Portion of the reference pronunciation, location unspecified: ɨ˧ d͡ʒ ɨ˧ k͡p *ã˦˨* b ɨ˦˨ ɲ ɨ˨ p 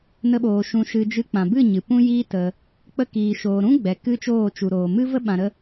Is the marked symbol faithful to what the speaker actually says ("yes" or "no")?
no